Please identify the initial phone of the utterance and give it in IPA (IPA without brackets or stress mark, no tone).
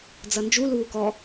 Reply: d͡z